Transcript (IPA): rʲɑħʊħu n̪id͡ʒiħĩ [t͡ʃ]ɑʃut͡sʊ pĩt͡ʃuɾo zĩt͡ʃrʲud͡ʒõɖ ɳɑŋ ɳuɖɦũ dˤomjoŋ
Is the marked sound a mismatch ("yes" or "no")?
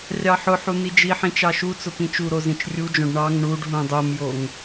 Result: no